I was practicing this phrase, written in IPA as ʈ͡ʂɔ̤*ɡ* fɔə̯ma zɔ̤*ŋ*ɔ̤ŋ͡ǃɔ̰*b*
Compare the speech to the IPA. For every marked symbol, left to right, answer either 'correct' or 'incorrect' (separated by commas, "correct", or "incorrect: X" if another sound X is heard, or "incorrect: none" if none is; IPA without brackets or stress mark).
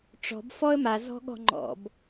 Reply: incorrect: b, incorrect: ɠ, correct